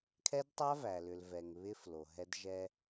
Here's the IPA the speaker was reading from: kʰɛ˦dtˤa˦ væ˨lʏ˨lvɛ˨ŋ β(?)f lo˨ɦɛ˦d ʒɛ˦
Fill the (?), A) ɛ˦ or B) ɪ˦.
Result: B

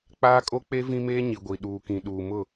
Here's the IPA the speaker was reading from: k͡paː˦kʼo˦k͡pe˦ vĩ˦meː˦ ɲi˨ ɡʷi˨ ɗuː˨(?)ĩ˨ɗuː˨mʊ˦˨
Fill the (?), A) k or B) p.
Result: A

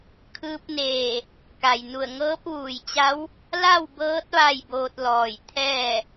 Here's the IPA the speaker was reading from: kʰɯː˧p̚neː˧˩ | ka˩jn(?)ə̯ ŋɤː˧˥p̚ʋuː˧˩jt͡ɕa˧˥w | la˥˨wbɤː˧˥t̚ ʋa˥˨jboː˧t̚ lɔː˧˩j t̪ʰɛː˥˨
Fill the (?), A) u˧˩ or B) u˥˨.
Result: A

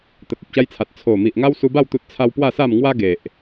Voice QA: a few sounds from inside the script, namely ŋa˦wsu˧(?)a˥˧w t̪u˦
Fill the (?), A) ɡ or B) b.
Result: B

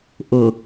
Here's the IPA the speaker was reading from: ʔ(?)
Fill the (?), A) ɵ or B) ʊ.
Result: B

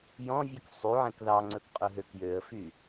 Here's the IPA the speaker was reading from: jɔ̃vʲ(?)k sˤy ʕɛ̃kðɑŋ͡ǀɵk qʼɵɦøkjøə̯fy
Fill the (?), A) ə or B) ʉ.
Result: B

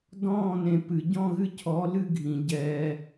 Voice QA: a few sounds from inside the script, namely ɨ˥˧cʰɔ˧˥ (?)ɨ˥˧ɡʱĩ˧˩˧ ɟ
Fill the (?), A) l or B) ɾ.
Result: A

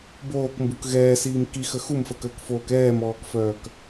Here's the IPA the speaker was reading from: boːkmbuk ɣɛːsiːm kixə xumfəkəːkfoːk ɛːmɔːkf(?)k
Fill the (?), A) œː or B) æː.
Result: A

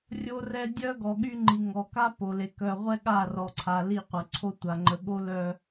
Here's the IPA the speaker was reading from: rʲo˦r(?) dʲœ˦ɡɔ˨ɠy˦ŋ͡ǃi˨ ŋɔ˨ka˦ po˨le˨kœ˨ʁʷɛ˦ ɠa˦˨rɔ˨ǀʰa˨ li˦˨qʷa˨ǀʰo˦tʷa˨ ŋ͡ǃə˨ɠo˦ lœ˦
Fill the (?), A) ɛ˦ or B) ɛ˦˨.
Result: A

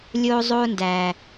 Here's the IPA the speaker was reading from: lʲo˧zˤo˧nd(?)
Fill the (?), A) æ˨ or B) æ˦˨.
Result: A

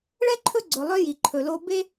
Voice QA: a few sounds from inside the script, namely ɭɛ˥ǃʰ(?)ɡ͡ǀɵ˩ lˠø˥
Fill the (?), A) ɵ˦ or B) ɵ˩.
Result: A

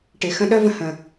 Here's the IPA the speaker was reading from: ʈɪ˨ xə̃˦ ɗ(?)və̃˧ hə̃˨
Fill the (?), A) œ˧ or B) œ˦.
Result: B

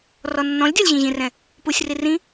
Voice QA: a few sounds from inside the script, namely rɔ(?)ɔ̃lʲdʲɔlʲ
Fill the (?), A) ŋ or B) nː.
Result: B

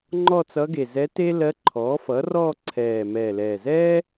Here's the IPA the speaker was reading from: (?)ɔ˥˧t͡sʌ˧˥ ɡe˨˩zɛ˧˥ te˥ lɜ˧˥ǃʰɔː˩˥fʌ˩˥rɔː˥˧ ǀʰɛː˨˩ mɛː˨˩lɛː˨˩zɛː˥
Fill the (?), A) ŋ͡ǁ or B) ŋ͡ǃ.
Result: B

